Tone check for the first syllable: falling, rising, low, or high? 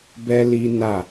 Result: high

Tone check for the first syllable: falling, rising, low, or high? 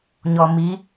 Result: low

